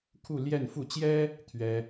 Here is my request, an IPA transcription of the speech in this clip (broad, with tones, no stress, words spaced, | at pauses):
kʰu˥˧ljɛ˥˧nfu˥˩ t͡ɕjɛ˥ | t̪ʰɥɛ˥